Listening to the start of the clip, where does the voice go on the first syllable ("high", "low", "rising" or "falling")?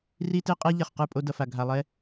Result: high